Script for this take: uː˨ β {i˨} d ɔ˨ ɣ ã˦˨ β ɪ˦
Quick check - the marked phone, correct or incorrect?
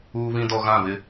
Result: incorrect